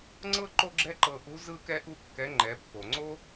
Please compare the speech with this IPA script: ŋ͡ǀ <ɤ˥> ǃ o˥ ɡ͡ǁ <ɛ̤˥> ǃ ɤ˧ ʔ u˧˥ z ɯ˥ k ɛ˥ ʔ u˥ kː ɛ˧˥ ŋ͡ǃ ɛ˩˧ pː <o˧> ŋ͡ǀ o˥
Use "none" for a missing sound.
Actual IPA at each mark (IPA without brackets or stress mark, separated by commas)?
ɤ˥, ɛ˥, o˩